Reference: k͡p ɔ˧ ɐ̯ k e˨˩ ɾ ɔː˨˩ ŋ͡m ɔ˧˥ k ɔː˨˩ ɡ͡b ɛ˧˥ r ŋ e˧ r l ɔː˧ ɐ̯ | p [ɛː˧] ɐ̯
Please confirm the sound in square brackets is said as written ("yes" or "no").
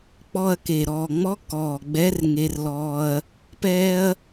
yes